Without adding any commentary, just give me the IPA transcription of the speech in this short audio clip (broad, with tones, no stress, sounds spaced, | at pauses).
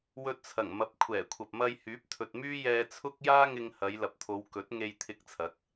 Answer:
w ɵ˧ t̚ t͡sʰ ɐ˨˩ ŋ m ɐ˨ p̚ kʷʰ ɛː˨˩ kʷʰ ɐ˨ p̚ m ɐ˧ j h yː˨˥ p̚ t̪ʰ ɵ˨ t̚ m yː˥ j ɛː˧ t͡sʰ ʊ˥ k̚ j aː˥ ŋ ɪ˧ ŋ h ɐ˨˧ j l ɐ˨ p̚ t̪ʰ o˨˧ w k ɵ˨˥ t̚ ŋ e˨ j t̪ʰ ɪ˨˥ k̚ t͡sʰ ɐ˨˥ k̚